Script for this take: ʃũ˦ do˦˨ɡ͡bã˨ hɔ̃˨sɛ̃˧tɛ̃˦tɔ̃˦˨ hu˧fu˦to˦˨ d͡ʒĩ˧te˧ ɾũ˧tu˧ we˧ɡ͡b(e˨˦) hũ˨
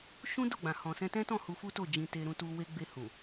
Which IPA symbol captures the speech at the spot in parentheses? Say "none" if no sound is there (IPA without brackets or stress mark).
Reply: e˧